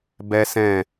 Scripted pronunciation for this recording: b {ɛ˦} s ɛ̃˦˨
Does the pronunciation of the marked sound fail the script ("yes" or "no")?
no